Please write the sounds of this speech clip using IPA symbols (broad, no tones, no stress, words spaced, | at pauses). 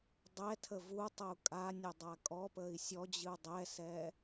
dˤɛtʰə vutˤəu̯ kʼanʲɵdˤa kʼɔpəi̯ sʲɔd͡ʑɨu̯ dˤɛsɛ